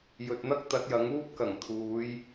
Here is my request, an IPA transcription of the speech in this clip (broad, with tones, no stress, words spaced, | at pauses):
jɵ˨t̚n̪ɐ˥k̚t̪ɐ˨˥t̚jɐ˨˥ŋ uː˥p̚kɐ˨˩ŋ t̪ʰuː˨˧j